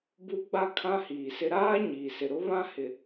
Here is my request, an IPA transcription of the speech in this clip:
bu˦ɡ͡ba˦ kʰã˦hiː˨sɪ˦ ɾaː˦ ɲiː˨sɪ˨ɾʊ˦ βã˦ hɪ˨

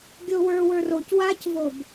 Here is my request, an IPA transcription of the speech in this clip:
ɡʲowə˞ wə˞roc wacvob

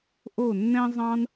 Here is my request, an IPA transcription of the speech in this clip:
ʔo˥˧nːɛ̃˥zˤɑ̃˥n

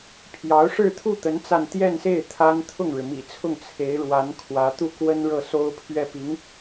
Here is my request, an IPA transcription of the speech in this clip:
pʰjɑ˧˥ʊ̯ʂɻ̩˥˧t̪ʰu˥˩t̪ə˧˥n t͡sa˥˧n t̪jɛ˥˧nse˥˩ɪ̯ t̪ʰa˥n t̪ʰʊ˥˩ŋɻɻ̩˩mḭ˨˩t͡sʰʊ˥˩ŋ t͡sʰe˧˥ɪ̯ɻwa˧˥n kʰwä˧˥t̪u˥˩kwə˥n ɻɤ˥˩so˥ʊ̯pʰɥɛ˥˩ pi˧˥ŋ

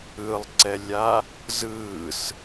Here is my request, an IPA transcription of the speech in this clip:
ɯlˠǀɛlʲa | zɯːs

